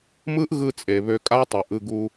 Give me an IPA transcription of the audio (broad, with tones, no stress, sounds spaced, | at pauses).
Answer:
m ɯ˦ ʔ ɣ ɯ˧ t͡sʼ e˨ β ø˧ kʼ a˦ tˤ ø˨ ʔ ɯ˦˨ ɡ u˧